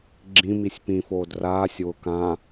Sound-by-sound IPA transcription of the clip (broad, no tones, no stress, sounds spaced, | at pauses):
ɡ͡ǁ ĩ m i sʲ p ĩ f oː d r aː sʲ w ʊ k ã